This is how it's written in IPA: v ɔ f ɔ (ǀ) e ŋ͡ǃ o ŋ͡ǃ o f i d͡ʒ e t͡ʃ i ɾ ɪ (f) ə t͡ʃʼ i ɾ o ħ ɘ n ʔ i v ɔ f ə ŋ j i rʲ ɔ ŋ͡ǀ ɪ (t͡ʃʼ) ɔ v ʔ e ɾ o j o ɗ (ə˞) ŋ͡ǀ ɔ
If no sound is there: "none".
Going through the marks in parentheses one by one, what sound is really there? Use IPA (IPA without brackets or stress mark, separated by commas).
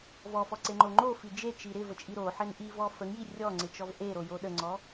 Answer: ǀ, v, t͡ʃ, ə